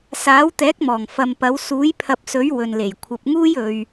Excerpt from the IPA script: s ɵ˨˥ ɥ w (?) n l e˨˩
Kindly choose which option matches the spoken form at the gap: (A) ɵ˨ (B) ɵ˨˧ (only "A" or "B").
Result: A